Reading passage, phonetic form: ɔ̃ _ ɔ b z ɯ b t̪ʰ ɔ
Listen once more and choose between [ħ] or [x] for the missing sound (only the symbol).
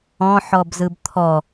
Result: ħ